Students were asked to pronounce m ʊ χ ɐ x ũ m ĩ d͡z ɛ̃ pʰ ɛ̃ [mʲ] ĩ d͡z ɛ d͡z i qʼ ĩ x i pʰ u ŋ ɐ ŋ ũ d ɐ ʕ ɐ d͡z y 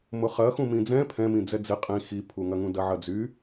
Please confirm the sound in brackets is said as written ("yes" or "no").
no